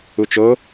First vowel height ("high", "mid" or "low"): high